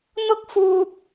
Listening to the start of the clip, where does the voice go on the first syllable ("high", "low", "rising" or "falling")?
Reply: high